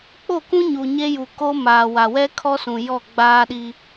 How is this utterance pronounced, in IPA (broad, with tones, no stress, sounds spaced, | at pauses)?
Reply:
k͡p o˦˨ k ũ˦ ɲ u˨ ɲ e˦ j u˨ k o˦ m aː˨ w a˨ w ɛ˦ kʰ ɔ˦ s ũ˨ j ɔ˦˨ ɡ͡b aː˦ ɗ i˦